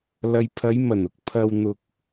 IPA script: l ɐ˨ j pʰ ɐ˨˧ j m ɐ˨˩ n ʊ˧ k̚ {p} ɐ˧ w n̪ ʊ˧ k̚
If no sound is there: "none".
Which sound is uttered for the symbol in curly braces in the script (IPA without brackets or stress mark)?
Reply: pʰ